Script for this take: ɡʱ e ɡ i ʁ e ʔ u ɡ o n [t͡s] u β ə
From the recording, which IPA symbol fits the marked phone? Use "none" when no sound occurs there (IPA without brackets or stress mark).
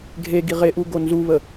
z